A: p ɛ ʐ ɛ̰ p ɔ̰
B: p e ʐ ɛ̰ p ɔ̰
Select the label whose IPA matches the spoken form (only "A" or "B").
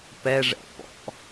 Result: A